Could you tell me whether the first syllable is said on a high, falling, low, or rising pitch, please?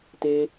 high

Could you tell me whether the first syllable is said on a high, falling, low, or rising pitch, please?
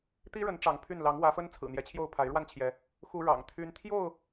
high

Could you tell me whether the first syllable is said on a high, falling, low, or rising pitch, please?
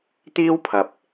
high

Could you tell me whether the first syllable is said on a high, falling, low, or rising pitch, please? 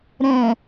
low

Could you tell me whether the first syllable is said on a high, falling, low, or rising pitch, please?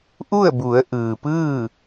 falling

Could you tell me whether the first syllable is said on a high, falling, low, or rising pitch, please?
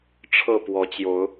falling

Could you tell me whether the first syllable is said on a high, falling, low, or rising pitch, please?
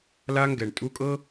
high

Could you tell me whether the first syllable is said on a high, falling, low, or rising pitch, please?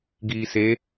low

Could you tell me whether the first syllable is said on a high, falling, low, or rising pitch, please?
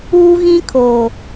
high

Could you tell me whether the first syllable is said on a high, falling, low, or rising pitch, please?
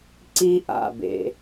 high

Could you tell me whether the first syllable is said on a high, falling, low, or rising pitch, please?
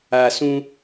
low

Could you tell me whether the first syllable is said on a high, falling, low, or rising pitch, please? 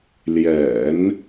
low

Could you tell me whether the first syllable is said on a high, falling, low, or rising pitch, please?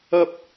high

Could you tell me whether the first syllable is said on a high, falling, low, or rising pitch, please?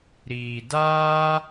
low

